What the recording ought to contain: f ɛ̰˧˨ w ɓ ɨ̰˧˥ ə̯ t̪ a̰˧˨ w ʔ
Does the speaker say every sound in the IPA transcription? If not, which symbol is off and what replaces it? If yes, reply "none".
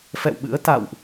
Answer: none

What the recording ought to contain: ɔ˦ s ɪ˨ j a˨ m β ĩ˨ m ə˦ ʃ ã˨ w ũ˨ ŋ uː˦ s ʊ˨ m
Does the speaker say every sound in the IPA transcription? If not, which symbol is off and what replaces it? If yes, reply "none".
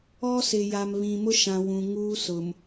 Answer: ə˦ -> ʊ˦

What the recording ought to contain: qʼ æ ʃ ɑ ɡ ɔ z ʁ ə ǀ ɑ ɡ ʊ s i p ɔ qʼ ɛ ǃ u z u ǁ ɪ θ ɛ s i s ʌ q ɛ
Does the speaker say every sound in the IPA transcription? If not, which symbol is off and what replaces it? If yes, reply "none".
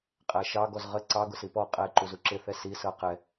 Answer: none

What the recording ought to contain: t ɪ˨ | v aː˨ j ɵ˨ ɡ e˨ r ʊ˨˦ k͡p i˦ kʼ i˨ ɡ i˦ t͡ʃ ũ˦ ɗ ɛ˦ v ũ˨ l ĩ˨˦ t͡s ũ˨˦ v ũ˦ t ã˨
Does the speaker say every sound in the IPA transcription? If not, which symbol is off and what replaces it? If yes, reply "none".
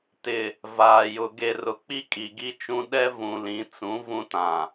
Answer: ɵ˨ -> ʊ˨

